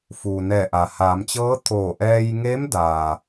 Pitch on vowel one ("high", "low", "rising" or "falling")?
low